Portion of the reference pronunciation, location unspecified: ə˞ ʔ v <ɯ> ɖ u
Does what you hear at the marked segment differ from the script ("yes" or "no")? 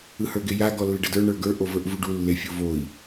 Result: yes